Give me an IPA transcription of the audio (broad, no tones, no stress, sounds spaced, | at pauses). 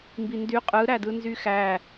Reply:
m b i n d y qʼ ɯ ɾ æ d ɯ n z y x æ